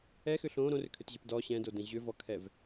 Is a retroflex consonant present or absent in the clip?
absent